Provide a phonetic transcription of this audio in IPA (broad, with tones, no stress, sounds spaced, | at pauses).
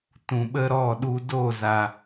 t ũ˨ ɓ ə˦ ɾ ɔ˦˨ ɗ u˧ d o˦˨ z a˨